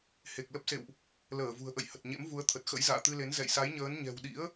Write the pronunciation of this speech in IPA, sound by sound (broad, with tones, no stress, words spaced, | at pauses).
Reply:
he˨˩k̚lə˦˥p̚sḛ˧˨wʔ | ləː˧˩vṳ˨˩ə̯ʔə̰˧˨j hə˨˩t̚ɲḛ˧˥m vu˨˦ə̯t̪ʰə˨˩t̚ xə̰˧˥jza̰ː˧˨t̪ɨ˧le˨˦n zɛ̰˧˨jsa˨˦jɲəː˨˦n ɲɛ̤˨˩wɗḭ˧˥ə̯